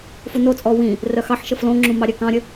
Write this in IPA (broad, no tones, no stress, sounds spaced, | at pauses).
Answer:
f u n o t͡sʼ ɔ w ĩ | r œ x ɑ ħ ʃ ə f l õ ŋ͡ǁ ũ m ɑ ɾʲ œ k ɑ̃ ɾʲ ə